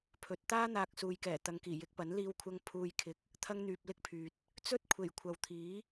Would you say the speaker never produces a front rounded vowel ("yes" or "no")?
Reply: no